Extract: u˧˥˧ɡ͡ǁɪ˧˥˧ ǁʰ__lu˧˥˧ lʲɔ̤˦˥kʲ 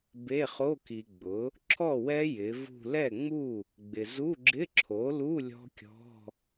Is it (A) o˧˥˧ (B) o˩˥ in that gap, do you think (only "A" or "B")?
B